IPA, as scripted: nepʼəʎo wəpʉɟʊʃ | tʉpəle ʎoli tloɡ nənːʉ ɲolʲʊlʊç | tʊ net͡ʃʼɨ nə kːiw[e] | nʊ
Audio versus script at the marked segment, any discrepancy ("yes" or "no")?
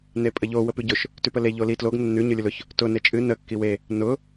no